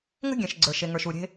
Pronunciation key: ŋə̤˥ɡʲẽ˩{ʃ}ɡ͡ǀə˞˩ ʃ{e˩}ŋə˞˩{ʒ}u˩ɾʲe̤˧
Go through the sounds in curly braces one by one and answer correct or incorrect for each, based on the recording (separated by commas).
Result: correct, correct, incorrect